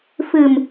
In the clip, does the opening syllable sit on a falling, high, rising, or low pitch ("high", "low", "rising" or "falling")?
low